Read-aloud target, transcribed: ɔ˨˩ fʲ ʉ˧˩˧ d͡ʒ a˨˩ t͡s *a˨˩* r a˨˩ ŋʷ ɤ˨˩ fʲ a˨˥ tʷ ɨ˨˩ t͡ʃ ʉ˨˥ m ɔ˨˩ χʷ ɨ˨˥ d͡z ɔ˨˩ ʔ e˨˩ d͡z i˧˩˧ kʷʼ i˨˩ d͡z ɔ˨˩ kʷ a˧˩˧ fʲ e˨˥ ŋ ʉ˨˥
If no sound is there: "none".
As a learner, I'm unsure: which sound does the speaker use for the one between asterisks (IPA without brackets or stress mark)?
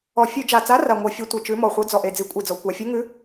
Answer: a˨˥